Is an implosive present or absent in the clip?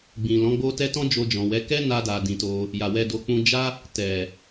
absent